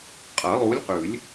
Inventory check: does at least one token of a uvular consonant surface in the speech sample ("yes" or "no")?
yes